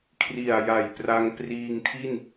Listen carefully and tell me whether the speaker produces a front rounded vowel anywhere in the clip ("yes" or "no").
no